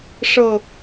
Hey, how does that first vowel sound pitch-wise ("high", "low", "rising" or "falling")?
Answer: falling